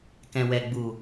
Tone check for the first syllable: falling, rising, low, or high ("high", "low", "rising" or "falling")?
low